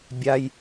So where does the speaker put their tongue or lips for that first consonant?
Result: lips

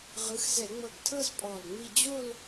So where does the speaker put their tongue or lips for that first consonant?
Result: uvula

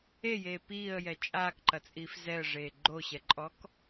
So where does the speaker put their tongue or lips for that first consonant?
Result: palate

